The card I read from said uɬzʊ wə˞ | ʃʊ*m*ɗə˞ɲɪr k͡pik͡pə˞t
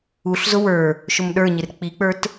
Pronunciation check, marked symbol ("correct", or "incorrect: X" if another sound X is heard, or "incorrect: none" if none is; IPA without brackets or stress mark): correct